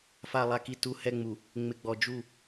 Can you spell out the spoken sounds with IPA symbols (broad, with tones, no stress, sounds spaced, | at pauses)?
f a˨ lˠ a˨ k i˨ t u˦ h ɛ˦ ŋ͡m u˨ | ŋ͡m ɪ˨ ɡ͡b ɔ˨ d͡ʒ u˦˨